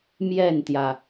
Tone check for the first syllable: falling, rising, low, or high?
falling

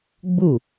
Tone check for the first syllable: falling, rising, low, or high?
falling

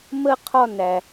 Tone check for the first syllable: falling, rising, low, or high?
high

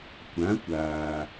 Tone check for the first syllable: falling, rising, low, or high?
rising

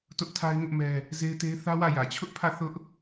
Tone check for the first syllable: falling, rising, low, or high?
high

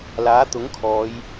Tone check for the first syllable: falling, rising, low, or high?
rising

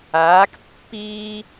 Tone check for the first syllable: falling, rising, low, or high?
rising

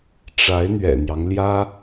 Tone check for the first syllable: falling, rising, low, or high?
rising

